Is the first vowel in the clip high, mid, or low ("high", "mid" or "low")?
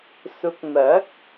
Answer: high